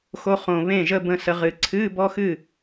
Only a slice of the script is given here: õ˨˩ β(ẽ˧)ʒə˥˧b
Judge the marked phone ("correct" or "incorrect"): incorrect